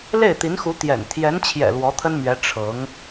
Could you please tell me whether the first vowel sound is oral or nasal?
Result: oral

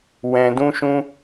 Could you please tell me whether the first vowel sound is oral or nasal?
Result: nasal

